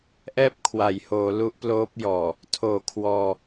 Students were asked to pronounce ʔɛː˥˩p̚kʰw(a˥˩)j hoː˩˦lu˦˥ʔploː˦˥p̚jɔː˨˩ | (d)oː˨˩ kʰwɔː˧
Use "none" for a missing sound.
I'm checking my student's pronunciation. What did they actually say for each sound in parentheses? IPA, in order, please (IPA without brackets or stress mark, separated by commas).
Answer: a˩˦, tʰ